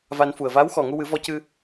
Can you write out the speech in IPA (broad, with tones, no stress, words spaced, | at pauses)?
va˧nfu˨˩ə̯ vaː˧˥wxɔ˨˩ ŋu˧wɨ˨˩˦vɔ˧cɨ˧